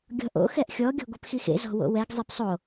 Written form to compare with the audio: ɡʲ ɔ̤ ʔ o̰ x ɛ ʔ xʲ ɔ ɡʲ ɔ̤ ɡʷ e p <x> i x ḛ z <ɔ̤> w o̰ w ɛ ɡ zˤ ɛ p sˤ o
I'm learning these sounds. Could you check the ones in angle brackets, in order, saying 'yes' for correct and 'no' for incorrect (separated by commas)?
yes, yes